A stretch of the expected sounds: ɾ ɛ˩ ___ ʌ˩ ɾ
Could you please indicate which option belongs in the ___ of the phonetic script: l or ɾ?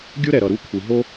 ɾ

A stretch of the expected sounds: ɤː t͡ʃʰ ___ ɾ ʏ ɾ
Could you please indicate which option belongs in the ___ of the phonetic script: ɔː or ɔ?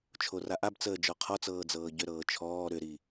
ɔː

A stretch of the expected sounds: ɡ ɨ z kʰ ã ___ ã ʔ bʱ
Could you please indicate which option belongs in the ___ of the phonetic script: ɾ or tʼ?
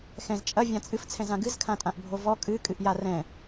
tʼ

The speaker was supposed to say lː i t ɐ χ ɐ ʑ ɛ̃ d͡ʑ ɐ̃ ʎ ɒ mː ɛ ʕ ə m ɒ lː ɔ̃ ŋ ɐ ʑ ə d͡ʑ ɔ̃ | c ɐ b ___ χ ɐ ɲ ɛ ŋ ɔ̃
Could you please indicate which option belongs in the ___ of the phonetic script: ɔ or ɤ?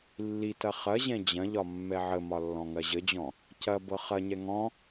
ɤ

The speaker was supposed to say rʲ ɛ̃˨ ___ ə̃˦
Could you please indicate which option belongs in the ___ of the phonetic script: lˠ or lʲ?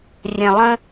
lˠ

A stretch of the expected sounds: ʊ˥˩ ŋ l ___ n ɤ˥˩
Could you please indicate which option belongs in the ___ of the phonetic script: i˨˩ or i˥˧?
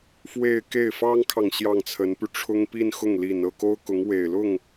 i˨˩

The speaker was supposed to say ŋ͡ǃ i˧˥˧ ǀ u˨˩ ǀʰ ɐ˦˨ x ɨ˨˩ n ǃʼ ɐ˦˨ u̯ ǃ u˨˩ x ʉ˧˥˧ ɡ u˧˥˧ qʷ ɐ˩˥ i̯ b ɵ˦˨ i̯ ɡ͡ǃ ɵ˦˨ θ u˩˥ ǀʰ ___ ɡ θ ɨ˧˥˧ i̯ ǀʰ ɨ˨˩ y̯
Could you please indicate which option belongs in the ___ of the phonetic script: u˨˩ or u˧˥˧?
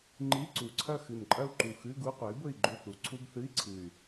u˧˥˧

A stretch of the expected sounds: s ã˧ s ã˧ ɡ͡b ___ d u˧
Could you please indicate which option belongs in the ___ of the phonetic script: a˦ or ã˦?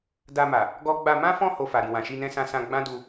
ã˦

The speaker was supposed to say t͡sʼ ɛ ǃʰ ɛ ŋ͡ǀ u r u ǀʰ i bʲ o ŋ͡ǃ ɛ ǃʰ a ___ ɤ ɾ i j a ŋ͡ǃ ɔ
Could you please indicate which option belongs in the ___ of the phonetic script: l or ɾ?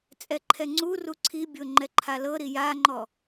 l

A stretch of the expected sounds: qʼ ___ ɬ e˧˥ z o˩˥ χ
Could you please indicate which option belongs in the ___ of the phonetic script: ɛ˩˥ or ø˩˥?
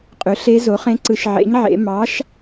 ø˩˥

